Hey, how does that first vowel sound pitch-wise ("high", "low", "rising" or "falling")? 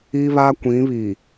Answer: high